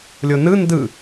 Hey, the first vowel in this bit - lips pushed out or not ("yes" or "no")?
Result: yes